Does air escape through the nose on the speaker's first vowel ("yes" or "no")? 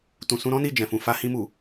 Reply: yes